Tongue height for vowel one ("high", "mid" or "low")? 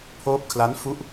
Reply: mid